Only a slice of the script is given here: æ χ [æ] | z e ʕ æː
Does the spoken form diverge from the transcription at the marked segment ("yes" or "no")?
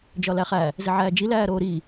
no